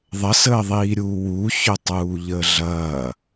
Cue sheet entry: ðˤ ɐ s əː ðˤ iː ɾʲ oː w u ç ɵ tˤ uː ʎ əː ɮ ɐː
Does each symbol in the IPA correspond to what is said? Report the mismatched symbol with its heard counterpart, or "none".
oː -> uː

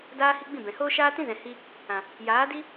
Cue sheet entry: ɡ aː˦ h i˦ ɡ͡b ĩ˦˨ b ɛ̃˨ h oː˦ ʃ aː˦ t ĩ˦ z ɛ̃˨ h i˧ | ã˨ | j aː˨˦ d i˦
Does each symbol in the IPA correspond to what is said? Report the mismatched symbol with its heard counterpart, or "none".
ɡ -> d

